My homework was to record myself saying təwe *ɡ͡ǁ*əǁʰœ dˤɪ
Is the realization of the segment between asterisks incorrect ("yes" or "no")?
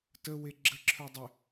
no